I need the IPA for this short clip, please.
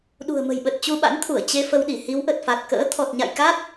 ɗ ṳ˨˩ ə̯ m ə̤˨˩ j ɓ ə˨˩ t̚ t͡ɕ u˧ ɓ a̰˧˥ n t̪ʰ u˧˩ ə̯ t͡ɕ e˧ f ə˧ w ɗ i˧˩ h i˨˦ w ʔ ə˨˩ t̚ f a˨˩ t̚ k ə̰ː˧˥ t̪ʰ ɔ˨˩ t̚ ɲ a̰˧˨ j k a˦˥ t̚

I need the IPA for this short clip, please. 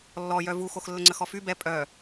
lː ɔ j œ v u x o x lː ə ŋ͡ǀ ə x ɔ f y b ɛ pʼ œ

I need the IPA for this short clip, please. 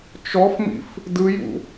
t͡ʃ ɔ f m ḭ f | d ɯ j ṵ

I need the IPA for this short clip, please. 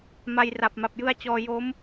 m a˧ j r a˨˩ p̚ m a˨˩ p̚ j ɯ˦˥ a̯ t͡ɕ ɔː˧ j o˦˥ m

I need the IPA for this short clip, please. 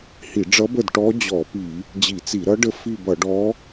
h i˧˩˧ ɖ͡ʐ ʌ˧˥ b ə˦˨ d ʈ ɔ˧˥ d͡ʑ ɔ˧˩˧ p i˧˩˧ | d͡ʑ i˧˩˧ t͡s i˧˩˧ ɾ ʌ˧˥ ɖ ə˦˨ f i˦˨ b ʌ˧˩˧ ɖ ɔ˧˥

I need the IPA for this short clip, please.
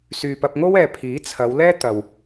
s yː˨ p ɐ˧ p̚ ŋ o˥ w ɛː˨ pʰ iː˨˥ t͡sʰ ɐ˨˧ w l ɛː˥ t̪ ɐ˨ w

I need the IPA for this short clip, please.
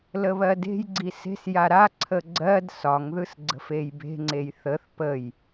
l ə β ɜ d e̤ j ɡ͡ǀ i s e̤ s j a ɾ a ǀʰ ə ɡ͡ǀ ɜ d s ɒ ŋ ð ɯ s ɡ͡ǀ ə̤ f e j b e̤ ŋ͡ǀ e j θ ə θ p ə j

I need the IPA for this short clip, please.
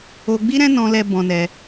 o˧ ɡ͡b i˦ ɾ ɛ̃˦ n ɔ̃˧ l ɛ˧ b ɔ̃˧ n ɛ˧

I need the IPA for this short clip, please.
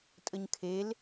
tʼ ə ɲ kʰ e l

